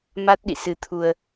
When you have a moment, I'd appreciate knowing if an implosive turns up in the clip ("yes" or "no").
yes